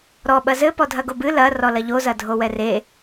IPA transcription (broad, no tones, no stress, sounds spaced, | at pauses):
ɾ ɔ ɓ ɐ z ɘ p ɔ dʱ ɐ ɡ o b ɨ l ɐ r ɔ l ɐ ʎ o z ɐ dʱ o w ɛ r e